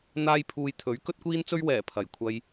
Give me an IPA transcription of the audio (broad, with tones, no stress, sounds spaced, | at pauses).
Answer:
n̪ aː˥ j pʰ uː˧ j t̪ʰ ɵ˨˥ ɥ k ɵ˥ t̚ kʷ iː˥ n t͡s ɵ˥ ɥ w ɛː˨˩ pʰ ɐ˨˩ j kʷʰ ɐ˧ j